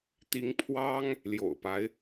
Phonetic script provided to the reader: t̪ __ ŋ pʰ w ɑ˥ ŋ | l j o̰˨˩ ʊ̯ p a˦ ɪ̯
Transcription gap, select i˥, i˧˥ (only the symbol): i˧˥